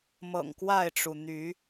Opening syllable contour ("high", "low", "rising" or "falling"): low